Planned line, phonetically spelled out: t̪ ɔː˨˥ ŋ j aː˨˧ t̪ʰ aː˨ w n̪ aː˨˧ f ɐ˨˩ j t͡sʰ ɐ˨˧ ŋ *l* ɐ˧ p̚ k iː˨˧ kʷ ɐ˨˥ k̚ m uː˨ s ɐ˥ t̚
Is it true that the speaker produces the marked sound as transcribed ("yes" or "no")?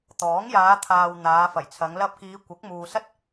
yes